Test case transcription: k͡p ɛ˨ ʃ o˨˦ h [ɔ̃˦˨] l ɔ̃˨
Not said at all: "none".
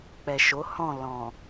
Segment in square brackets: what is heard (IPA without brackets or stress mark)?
ɔ̃˦˨